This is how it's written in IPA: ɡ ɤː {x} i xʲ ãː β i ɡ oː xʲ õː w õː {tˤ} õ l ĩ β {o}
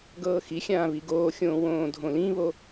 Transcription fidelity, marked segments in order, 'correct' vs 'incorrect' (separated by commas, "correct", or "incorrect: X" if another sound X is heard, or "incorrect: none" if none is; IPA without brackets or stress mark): correct, incorrect: dʱ, correct